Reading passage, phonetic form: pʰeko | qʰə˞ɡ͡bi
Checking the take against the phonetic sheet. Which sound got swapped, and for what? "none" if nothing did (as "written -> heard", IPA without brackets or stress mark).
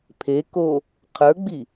none